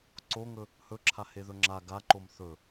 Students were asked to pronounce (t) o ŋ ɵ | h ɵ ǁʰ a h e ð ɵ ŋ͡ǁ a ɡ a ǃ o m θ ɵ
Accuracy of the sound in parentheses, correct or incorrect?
incorrect